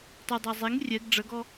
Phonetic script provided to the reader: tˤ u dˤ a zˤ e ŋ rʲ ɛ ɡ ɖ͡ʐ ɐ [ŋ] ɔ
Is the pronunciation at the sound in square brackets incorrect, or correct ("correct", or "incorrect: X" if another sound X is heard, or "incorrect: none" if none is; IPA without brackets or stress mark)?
incorrect: ɡ